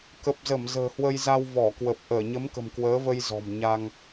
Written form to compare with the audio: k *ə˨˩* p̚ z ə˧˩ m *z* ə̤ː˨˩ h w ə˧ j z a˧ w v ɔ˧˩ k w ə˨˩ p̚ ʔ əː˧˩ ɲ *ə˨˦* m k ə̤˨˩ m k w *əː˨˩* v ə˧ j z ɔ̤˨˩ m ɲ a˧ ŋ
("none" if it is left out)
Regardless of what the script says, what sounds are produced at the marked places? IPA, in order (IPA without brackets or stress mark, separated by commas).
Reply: ə˨˩, z, ə˨˦, əː˨˦